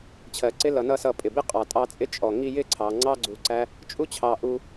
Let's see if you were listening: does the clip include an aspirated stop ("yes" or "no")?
yes